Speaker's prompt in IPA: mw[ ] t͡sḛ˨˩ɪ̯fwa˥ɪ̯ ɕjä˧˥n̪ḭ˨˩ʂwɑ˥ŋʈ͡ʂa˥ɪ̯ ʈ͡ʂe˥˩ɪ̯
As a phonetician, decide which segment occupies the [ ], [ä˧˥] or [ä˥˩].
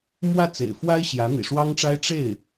ä˥˩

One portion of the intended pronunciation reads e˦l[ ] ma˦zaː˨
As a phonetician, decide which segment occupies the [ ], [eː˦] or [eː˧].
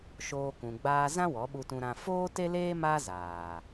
eː˦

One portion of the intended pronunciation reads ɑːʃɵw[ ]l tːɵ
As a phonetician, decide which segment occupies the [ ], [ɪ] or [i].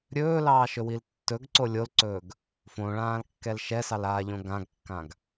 i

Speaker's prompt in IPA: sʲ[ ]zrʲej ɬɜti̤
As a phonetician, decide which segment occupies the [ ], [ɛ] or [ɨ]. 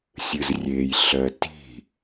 ɨ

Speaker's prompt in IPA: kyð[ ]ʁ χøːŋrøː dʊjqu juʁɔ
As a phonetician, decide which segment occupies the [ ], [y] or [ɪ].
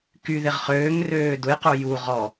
ɪ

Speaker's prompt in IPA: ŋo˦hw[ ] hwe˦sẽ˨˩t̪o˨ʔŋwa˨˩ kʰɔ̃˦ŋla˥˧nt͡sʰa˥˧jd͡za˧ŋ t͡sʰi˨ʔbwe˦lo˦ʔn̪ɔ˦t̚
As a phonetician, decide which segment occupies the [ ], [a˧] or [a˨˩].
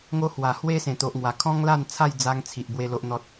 a˨˩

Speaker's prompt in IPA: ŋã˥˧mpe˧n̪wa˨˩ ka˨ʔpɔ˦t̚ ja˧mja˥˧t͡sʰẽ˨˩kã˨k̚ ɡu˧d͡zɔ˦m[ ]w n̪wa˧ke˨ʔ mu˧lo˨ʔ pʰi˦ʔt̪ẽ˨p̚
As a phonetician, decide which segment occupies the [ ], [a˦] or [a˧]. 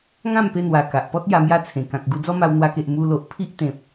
a˧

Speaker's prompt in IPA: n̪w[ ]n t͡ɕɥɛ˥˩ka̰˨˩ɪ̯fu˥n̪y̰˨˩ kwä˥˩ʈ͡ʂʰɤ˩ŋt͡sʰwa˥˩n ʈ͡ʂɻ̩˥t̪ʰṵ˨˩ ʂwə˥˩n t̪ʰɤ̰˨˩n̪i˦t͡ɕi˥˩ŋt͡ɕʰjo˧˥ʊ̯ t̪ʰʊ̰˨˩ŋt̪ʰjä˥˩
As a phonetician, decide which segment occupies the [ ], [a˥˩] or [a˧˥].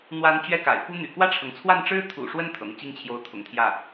a˧˥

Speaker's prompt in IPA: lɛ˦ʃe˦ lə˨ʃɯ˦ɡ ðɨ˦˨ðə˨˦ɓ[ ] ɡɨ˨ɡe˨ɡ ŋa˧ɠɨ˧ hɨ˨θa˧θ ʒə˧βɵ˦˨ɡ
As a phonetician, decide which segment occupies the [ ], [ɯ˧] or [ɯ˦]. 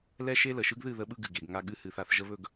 ɯ˧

